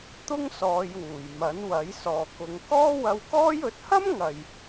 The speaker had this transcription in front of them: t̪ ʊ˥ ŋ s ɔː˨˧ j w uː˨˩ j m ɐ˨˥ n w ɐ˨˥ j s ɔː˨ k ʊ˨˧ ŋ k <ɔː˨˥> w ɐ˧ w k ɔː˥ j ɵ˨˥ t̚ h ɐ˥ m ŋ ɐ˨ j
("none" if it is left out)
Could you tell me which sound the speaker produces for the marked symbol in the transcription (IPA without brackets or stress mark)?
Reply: ɔː˥